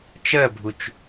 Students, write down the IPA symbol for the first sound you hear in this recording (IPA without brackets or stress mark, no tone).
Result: t͡ʃ